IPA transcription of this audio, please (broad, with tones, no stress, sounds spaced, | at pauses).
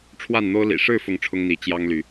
ʈ͡ʂʰ w a˥˨ n n̪ o˦ ʊ̯ l ḭ˨˩ ʂ ɻ̩˥˨ f ʊ˥˨ ŋ ʈ͡ʂʰ ʊ˦ ŋ n̪ i˨˦ t͡ɕ j ɑ˦ ŋ l y˨˦